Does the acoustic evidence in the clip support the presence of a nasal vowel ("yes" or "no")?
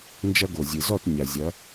no